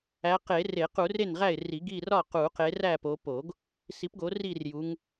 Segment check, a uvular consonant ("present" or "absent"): present